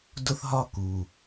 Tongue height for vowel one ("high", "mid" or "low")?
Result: high